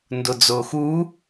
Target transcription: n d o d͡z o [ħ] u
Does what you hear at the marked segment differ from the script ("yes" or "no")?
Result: yes